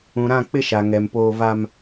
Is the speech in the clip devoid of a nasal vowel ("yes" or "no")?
no